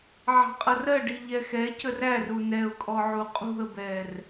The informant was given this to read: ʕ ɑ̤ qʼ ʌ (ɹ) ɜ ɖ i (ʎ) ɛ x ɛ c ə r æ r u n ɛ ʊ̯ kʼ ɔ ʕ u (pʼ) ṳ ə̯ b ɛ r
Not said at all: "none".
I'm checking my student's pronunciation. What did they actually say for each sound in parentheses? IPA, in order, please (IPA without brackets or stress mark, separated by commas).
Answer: r, ʎ, qʼ